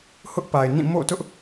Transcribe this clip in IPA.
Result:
h ʊ˦ ʔ p a˨ ɪ̯ n ĩ˦˨ m o̰˦˨ t ʊ˦ ʔ

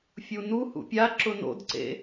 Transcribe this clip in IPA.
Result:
fʲ u n u h ṵ pʲ a ǁ ʊ n o̰ d ǀ ḛ

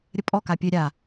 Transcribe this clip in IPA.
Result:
ɾʲ ə pʼ ɔ k a pʲ ø ɾʲ a

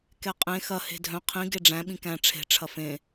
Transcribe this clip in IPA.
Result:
k ɛ qʼ ẽ x ɐ h e̤ dʱ œ̃ qʰ ĩ ɡ e ɖ͡ʐ æ̃ ɓ ĩ k æ̃ ʈ͡ʂʰ e̤ ʈ͡ʂʰ ɐ f ẽ

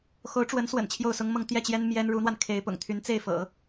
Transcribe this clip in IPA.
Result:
x o˧˥ ʊ̯ ʈ͡ʂ w ə˧˥ n s w ə̰˨˩ n t͡ɕʰ j o˥˩ ʊ̯ s ʊ˥ ŋ m ɤ˥˧ ŋ t̪ j ɛ˥˩ t͡ɕ j ɛ˥ n m j ɛ˥ n ɻ u˧˥ n̪ w a˧ n kʰ e˧˥ ɪ̯ p ʊ̰˨˩ ŋ t̪ʰ y˧˥ n t͡s e˥˩ ɪ̯ f ɤ̰˨˩˦

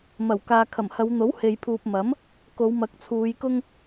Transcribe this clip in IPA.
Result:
m ɐ˨˩ w k aː˨ kʰ ɐ˨˩ m h ɐ˨˧ w n̪ o˨˥ w h e˨ j pʰ uː˨ p̚ m ɐ˨˥ m | k o˨˧ w m ɐ˨˥ k̚ t͡sʰ uː˨˧ j k ʊ˥ ŋ

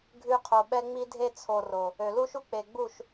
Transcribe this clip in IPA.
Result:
ɡʱ ʉ˧ qʰ o˨ ɓ ɛ˧ ŋ͡m i˦ dʱ e˧ t͡sʰ o˨ r o˨ | ø˨ l u˦ ʃ u˦ k͡p e˨ ɡ͡b u˦˨ ʃ

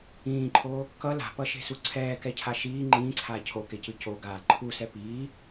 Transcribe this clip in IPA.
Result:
ĩː ǃʰ oː | k ʌ l a̤ p ʌ ʃ e̤ s u ǀʰ ɛː k ɛ cʰ a ʃ iː ŋ͡ǃ ĩː ǀʰ aː cʰ o k e c ɯ c o ɡ aː ǃʰ u s ɛ p iː

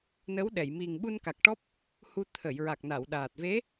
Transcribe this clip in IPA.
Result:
n ə˧˥ w ɗ ɛ˨˩˨ j m i˨˩ ŋ ɓ u˧ n k a˨˩ k̚ ʈ ɔ˦˥ p̚ | h u˧ t̪ʰ ə˨˩˨ j ɹ a˨˩ k̚ n a˨˩˨ w ɗ aː˨˩ t̚ v e˧˥

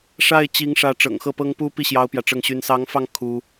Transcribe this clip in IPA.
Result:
ʂ a˥˩ ɪ̯ t͡ɕ i˧˥ ŋ ʂ ä˧˥ ʈ͡ʂ ɤ̰˨˩ ŋ x ɤ˥˩ p ɤ˥ ŋ p u˥ p i˥˩ ɕ j ɑ˥ ʊ̯ p j ä˨ ʈ͡ʂ ɤ˥˩ ŋ ɕ y˥ n s ɑ˧˥ ŋ f ɑ˧ ŋ kʰ u˥

